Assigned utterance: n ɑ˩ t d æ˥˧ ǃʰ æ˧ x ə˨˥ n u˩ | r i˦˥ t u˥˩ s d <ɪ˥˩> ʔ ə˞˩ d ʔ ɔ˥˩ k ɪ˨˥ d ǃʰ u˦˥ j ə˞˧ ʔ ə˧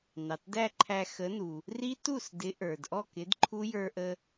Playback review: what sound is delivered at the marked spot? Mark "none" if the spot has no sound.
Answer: ɪ˨˥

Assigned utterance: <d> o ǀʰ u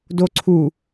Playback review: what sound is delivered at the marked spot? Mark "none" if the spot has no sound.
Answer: d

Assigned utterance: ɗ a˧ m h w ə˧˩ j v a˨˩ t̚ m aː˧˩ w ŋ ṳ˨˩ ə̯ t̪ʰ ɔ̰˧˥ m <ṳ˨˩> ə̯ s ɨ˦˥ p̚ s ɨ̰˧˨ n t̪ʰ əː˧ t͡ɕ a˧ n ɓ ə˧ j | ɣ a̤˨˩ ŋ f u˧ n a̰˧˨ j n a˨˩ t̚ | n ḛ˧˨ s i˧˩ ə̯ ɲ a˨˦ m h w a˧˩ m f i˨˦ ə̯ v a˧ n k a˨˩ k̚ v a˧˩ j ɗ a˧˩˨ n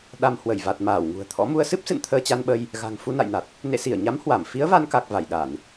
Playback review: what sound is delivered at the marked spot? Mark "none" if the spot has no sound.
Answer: u˧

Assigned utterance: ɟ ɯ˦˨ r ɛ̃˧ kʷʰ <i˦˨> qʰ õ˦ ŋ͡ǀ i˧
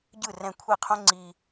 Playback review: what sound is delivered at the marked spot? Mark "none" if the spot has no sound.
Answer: i˦˨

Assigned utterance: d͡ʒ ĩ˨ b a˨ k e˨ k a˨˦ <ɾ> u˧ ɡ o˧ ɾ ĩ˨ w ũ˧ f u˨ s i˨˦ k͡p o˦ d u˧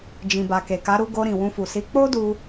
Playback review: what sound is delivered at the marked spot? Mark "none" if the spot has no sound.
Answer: ɾ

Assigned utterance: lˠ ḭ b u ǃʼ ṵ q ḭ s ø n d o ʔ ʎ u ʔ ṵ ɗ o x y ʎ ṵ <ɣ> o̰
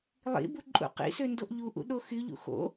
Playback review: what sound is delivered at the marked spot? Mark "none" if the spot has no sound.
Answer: x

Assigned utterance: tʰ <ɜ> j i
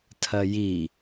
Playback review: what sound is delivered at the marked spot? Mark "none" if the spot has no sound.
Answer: ɜ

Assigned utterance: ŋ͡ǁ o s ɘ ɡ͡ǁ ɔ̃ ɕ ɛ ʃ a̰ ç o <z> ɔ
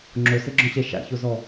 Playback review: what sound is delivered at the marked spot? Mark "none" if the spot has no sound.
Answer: z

